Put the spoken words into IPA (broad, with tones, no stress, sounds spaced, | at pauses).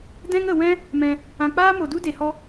d ɛ̃˦ ŋ ə˨ w ɛ̃˦ | m ɛ̃˧ | ã˧ k͡p aː˦ m o˨ d u˦ d e˨ h ɔ˧